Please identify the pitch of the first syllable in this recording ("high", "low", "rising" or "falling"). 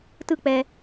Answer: falling